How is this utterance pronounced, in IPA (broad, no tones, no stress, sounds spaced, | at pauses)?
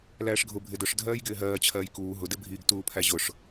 l æː ʂ ɡʱ ʊ bʱ ɪ d ʊ ʂ dʱ ɜː j ɡ ɪː ɦ ɜː t͡ɕʰ ɜː j k uː ɦ ʊ d ɪ bʱ iː ɡ t uː pʰ æ ʑ ʊ ʂ